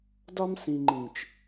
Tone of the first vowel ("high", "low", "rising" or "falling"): high